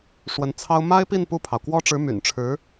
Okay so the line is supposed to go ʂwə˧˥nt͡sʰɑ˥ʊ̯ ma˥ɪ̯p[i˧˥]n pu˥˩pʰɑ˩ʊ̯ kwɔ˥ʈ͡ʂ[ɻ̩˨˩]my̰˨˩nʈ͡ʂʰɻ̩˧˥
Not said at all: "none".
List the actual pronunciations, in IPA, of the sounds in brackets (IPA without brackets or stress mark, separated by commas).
i˥˧, ɻ̩˧˥